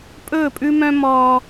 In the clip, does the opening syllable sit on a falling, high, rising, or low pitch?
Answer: falling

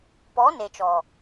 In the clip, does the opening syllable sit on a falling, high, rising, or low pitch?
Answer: rising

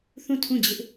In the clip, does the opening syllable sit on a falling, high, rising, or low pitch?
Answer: falling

